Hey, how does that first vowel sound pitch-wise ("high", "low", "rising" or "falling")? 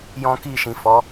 high